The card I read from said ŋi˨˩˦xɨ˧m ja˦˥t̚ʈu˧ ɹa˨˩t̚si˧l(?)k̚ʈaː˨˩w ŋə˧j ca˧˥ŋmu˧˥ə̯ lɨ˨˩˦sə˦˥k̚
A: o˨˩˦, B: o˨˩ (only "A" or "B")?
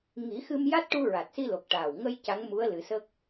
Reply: B